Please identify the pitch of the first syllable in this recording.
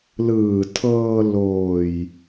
low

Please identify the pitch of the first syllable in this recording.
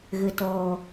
low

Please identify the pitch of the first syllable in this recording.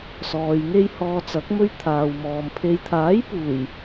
low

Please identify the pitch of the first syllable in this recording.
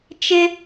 high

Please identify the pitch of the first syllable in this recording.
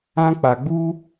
high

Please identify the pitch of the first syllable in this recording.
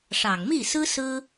low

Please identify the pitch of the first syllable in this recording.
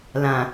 low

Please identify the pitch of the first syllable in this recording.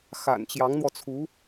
low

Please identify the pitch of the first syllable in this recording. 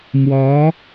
rising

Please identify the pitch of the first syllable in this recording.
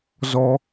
high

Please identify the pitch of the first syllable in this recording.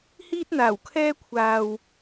high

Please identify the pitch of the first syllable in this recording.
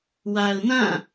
low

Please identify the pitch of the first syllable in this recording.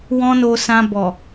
high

